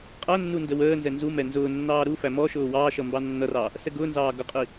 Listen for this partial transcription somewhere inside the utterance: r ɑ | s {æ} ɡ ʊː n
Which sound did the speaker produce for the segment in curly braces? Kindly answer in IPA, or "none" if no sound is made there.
ɛ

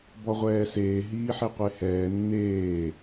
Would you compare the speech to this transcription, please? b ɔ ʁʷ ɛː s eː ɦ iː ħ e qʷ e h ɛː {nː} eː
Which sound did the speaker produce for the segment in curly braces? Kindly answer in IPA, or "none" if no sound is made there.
nː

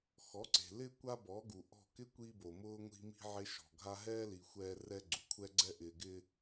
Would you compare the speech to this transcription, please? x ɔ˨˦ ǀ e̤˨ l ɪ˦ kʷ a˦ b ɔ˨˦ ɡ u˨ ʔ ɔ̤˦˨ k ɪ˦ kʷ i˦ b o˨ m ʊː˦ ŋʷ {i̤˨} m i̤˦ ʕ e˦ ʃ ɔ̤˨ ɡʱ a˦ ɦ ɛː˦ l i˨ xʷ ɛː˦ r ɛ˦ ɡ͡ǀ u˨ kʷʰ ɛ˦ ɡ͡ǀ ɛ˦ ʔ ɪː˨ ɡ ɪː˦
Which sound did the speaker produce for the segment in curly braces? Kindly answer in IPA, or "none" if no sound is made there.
i̤˦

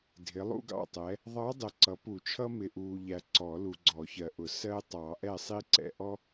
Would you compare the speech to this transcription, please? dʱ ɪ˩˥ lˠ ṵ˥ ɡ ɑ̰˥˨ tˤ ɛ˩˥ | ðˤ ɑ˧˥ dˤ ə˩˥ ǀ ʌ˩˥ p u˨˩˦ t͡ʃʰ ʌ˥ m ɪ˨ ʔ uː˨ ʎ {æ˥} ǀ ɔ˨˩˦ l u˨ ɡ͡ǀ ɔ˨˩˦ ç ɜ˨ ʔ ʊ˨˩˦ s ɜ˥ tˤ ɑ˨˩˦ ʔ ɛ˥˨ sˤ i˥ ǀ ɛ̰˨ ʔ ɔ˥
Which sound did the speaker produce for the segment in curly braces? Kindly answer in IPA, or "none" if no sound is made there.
æ˨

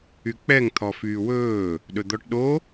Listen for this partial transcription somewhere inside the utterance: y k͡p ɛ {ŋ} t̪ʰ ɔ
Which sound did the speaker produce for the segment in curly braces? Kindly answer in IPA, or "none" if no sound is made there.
ŋ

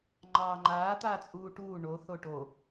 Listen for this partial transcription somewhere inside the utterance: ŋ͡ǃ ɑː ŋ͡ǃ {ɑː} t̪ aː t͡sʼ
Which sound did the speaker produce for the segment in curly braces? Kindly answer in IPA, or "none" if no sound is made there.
aː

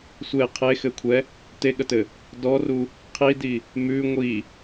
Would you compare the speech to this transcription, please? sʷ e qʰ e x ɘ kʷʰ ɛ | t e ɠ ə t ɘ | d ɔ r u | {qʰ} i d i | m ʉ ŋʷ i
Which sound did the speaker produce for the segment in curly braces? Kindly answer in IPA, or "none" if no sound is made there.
qʰ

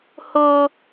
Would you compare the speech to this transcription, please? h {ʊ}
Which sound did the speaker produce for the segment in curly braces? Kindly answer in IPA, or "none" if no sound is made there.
ʊ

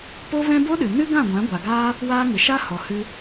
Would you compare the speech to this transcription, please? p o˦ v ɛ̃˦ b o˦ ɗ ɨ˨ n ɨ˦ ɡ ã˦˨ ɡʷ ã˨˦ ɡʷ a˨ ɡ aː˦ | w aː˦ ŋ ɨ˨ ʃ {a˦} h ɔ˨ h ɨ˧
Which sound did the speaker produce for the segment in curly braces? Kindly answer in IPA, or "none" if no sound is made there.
a˦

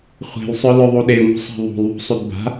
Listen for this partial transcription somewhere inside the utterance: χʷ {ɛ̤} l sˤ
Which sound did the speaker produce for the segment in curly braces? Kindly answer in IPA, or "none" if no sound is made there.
e̤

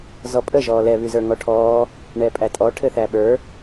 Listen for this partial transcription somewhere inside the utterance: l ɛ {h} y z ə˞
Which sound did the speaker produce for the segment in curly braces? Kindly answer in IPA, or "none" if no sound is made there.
β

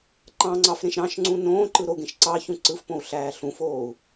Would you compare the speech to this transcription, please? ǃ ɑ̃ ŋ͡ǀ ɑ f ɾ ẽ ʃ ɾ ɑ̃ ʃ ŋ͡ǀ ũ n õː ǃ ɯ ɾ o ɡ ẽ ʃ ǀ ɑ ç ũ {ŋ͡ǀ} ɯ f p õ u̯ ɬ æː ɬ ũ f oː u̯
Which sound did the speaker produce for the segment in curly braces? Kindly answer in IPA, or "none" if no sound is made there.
ǀ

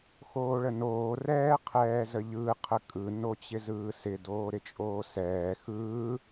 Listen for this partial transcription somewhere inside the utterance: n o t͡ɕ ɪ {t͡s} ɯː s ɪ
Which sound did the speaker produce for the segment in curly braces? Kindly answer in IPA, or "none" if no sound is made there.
z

